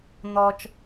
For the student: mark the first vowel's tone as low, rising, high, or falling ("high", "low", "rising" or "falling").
high